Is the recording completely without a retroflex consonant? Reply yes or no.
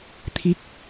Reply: yes